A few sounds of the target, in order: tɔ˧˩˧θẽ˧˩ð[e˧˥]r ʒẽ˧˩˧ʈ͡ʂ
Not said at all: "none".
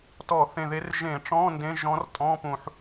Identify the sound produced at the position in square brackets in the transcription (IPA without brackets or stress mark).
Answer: e˧˥